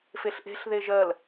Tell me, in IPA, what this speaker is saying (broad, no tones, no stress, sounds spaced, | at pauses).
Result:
f e ɬ ʔ e̤ ɬ ð e ʒ ɜ l